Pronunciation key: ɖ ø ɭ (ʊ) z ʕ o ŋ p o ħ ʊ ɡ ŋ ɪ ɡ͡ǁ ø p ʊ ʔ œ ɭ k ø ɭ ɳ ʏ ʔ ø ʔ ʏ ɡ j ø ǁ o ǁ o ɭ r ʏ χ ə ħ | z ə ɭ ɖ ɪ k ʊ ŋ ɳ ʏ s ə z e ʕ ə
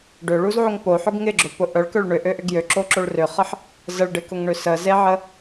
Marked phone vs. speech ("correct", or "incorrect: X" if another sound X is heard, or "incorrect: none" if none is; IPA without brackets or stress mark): incorrect: u